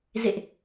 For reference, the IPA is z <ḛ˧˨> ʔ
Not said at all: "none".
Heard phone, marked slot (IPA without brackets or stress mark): ḛ˧˨